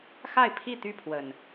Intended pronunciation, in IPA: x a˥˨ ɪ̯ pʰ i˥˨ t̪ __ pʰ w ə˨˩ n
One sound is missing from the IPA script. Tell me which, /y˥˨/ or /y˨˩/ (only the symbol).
y˥˨